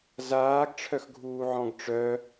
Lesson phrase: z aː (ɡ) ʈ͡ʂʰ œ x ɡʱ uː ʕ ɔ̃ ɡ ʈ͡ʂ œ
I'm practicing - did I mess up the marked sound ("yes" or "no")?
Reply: no